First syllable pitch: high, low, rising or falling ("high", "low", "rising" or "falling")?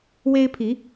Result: high